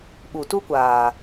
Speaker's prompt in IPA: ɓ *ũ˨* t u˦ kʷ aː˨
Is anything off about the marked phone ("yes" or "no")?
yes